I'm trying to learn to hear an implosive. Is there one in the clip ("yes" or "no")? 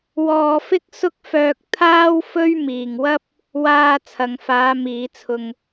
no